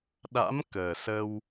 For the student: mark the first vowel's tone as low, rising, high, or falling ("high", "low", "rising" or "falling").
rising